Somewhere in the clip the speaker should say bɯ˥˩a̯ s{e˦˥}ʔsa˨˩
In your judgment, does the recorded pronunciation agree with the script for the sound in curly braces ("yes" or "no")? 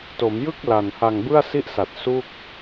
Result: no